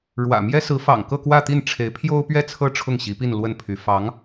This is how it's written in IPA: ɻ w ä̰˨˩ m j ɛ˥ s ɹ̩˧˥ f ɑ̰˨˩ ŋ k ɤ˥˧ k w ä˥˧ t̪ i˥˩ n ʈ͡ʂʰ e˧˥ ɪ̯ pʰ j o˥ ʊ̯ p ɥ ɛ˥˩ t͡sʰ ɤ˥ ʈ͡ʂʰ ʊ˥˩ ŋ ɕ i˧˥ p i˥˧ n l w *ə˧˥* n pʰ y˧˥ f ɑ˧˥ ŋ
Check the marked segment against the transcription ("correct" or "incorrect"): incorrect